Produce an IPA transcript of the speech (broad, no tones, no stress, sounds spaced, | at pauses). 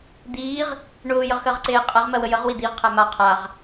d̪ iː ʁ | ɳ ʊː j ə ʁ x ɜ ʁ ǀ eː qʼ æ ʁ m ɜ w ə j ə ʁ w i d̪ i ʁ qʰ æ m a qʰ a ʁ